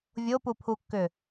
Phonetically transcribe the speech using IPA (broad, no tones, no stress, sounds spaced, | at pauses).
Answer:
vʲ o p u pʰ u kː ʏ